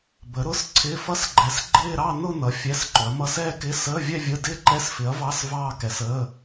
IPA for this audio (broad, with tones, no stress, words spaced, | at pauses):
bə˨˥ɾʊ˧˥˧s ǀʰɪ˧˥˧fʌ˥˧sɡ͡ǃɛ˨˥s ɡ͡ǃɪː˥˧ɾɑ˥˧ nʊ˥˧nʌ˨˥ fʲɛ˧˥˧sǃʊ˨˥ɐ̯mʌ˥˧s ɛː˥˧kɪ˧˥˧ səː˧˥˧vʲɛ˥˧vʲə˧˥˧ dɪː˥˧ǃɛ˧˥˧sfɪ˨˥ɐ̯vɑ˧˥˧s vɑː˥˧kɛ˨˥səː˧˥˧